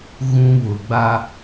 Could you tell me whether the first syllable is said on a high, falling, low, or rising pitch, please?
high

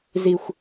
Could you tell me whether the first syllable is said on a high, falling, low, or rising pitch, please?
low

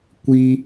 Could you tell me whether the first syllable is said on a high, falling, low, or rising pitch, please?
high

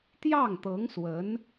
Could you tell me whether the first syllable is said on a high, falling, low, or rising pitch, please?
falling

